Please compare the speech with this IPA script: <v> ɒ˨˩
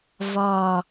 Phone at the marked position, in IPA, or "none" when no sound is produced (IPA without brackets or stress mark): v